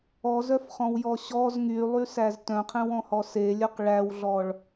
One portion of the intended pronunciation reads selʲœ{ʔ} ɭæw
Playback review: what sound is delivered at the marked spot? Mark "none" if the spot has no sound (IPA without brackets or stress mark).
q